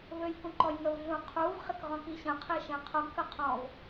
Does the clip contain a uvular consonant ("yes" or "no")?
yes